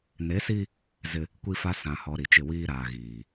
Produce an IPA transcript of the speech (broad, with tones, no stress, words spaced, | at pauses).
ne˨˦si˦ | zɪ˦ | kʷi˦fa˦ sã˨hɔ˨ ɾi˨t͡ʃɪ˦˨wiː˦ ɾaː˨ɣiː˨